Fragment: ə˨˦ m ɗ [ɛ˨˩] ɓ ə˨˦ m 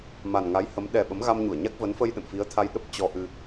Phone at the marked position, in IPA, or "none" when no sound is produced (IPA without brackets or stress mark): ɛ˨˩